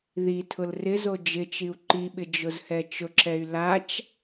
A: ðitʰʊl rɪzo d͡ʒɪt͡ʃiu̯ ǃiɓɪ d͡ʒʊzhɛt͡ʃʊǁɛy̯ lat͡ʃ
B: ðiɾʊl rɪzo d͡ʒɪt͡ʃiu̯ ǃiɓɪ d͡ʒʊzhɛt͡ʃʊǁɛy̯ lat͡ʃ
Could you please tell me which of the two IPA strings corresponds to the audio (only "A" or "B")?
A